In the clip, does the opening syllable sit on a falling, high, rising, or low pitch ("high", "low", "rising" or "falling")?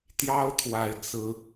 high